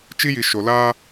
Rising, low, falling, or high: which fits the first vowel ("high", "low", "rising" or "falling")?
high